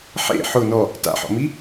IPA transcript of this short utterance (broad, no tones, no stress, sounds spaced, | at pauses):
ħ ḛ ħ ʊ n ɔ | t a̰ ħ ɔ̰ m i